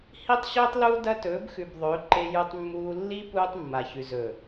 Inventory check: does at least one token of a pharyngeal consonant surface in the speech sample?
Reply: no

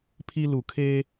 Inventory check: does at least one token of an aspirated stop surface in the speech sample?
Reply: yes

